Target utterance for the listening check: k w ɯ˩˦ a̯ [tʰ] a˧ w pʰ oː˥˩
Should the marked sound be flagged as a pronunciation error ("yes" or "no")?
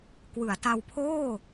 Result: yes